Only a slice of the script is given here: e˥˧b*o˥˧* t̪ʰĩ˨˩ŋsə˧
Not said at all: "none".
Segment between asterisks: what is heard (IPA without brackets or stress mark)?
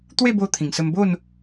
o˧